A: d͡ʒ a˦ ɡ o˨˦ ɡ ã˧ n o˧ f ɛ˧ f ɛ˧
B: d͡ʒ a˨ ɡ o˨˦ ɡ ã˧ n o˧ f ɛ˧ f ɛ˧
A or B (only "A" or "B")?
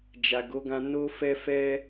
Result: B